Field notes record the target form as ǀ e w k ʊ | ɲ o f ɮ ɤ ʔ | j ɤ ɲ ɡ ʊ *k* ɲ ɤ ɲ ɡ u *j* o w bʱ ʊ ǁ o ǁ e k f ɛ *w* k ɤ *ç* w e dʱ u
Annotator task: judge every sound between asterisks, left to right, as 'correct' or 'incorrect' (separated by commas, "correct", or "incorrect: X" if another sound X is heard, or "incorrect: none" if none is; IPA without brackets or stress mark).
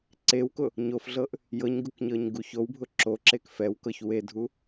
correct, incorrect: ç, correct, correct